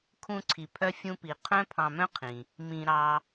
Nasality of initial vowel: nasal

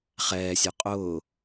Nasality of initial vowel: oral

